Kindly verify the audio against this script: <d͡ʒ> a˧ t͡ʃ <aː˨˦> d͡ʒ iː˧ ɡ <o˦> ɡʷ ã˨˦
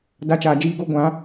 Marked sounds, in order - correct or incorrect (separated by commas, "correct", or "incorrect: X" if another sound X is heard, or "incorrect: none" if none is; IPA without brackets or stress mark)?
incorrect: d, incorrect: aː˨, correct